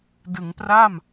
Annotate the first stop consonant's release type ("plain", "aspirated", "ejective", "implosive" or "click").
plain